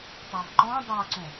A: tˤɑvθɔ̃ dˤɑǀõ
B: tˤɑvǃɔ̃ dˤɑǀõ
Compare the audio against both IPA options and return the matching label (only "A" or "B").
B